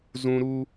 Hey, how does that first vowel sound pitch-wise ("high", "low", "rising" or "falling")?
high